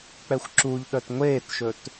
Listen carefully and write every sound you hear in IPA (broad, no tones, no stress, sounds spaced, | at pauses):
k͡p ɛ xʷ ǁ u ʎ ɗ œ t ŋʷ eː t ʃ ɵ t